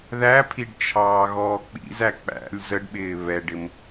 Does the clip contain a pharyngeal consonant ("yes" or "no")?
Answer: no